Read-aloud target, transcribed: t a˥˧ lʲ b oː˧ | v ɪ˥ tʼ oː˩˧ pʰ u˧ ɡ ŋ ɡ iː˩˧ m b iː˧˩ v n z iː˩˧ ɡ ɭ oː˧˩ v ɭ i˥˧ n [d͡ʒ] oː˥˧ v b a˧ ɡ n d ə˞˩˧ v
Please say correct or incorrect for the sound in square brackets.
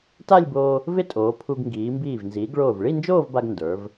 correct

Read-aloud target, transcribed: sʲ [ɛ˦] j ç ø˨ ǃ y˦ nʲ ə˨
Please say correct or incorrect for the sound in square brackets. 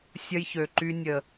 incorrect: ə˦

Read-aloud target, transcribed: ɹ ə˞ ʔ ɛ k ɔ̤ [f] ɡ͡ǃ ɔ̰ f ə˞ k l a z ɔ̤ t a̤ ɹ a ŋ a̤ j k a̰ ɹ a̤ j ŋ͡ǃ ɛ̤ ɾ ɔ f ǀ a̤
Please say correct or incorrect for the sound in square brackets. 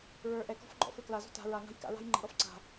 correct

